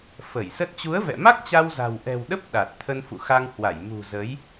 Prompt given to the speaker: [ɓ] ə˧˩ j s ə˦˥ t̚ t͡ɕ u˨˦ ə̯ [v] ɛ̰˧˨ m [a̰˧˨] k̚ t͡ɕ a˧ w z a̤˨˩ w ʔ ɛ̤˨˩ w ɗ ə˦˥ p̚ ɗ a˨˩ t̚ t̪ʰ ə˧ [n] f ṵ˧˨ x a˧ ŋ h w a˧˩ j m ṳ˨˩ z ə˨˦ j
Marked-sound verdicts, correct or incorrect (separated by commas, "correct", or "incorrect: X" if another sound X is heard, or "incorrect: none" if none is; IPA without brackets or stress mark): incorrect: f, correct, incorrect: a˦˥, correct